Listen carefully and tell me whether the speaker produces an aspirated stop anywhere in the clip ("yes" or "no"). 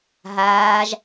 no